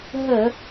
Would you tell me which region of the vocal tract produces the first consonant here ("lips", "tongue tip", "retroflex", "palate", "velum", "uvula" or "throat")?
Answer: throat